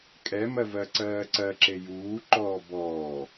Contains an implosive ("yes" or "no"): no